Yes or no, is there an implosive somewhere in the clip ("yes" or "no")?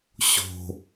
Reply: no